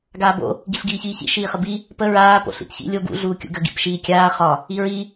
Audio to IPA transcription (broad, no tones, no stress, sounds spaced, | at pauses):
ɡ aː b o̰ | ɡ i ɬ ɡ iː ç iː ç ḭ ʃ iː χ ə b i | p ə ɹ aː p o̰ ɬ ḭ t ç ḭ lʲ o ɡ ṵ ɮ uː kʲ ṵ ɡ ə ɡ ḭ p ʃ iː kʲ aː χ ɒ | i ɹ i